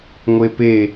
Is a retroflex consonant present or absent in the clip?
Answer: absent